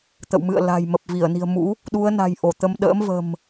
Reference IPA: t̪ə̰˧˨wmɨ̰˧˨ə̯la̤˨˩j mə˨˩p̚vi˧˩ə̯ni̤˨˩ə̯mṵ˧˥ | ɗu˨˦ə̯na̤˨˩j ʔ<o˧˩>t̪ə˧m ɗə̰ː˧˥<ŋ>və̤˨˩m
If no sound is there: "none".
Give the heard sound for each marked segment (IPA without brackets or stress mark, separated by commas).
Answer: o˧˩, m